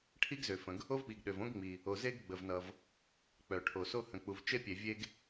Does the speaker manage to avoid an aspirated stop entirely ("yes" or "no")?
no